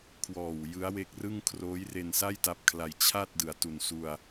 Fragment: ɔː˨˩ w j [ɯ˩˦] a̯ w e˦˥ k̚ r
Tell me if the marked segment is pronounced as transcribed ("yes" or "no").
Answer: no